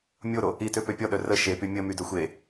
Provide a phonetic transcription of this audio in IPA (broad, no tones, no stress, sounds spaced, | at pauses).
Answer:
mʲ o ɾ o | i t ø p ø pʲ ɔ ɗ œ r ə ʃ e p y mʲ ə m y d œ xʷ e